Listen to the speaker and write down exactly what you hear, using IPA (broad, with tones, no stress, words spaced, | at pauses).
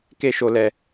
ke˦ʃo˧lɛ˧